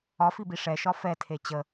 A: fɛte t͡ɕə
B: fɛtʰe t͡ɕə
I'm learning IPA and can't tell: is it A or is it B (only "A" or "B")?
B